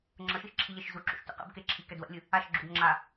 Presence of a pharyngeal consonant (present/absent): absent